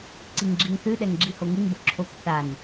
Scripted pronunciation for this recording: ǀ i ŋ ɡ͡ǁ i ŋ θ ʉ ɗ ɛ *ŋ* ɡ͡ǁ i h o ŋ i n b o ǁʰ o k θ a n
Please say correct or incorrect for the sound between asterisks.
correct